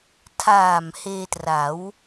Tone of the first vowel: low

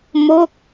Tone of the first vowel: falling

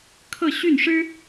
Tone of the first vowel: falling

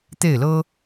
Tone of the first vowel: falling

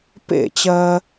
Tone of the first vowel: falling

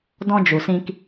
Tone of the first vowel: high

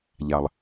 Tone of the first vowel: low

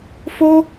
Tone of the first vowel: high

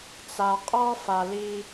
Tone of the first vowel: low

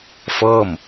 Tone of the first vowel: falling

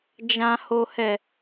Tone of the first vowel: low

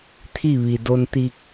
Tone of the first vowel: falling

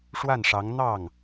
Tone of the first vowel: falling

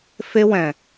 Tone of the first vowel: high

